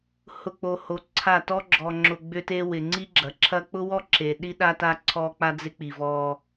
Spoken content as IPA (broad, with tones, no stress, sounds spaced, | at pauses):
h ʊ˨ k͡p o˨ h o˨ ǀʰ a˦˨ t ɔ˦ ɡ͡ǁ ɔ˨ ŋ͡ǁ ʊ˨ ɡ͡b ʏ˦ t e˦ w ɪ˨ ŋ͡ǀ i˦ ɡ͡ǁ ɐ˨ ǁʰ ɐ˦ k͡p ʊ˦ w ɔ˦ ǁ e˨ ɗ i˦ ɗ a˦ t a˦ ǀʰ ɔ˦ k͡p a˦ d͡z ɪ˦ k͡p i˨ v ɔ˦